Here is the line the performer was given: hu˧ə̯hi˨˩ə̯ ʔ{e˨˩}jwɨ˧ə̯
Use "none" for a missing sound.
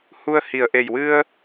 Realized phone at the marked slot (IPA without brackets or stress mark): e˨˩